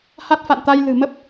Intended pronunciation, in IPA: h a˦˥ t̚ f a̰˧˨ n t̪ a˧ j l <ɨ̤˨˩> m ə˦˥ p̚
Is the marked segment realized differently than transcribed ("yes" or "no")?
no